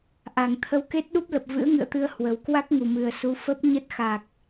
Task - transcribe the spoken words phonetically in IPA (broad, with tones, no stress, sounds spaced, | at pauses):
ʔ a˨˩ ŋ t̪ʰ ə˧ w k e˦˥ t̚ ɗ u˦˥ p̚ l ə˨˩ p̚ v ɨ̰˧˥ ə̯ ŋ ɨ̰˧˨ ə̯ t̪ ɨ˧ ə̯ h w ə˨˩ w k w a˦˥ k̚ ŋ u˨˩ m ɨ˨˩ ə̯ s u˨˦ f ə˦˥ p̚ ɲ ə˦˥ t̚ x a˨˩ k̚